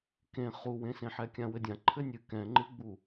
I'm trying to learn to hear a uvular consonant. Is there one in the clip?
yes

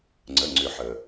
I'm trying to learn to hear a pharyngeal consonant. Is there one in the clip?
yes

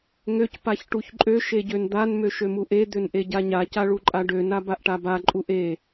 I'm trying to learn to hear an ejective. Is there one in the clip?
yes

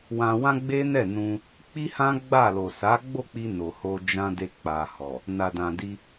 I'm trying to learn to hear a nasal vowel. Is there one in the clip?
yes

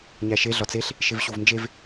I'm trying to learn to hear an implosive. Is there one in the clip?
no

